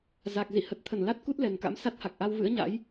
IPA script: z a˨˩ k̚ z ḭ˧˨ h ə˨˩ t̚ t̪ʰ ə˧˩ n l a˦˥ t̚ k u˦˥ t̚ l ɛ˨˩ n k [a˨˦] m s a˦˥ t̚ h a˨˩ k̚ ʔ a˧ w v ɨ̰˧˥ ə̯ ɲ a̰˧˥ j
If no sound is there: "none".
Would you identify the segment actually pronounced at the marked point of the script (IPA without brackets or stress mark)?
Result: a̰˧˥